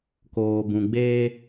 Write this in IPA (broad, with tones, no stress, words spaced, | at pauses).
koː˨bũ˨ɡ͡beː˦